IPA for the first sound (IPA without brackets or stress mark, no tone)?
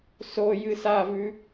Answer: s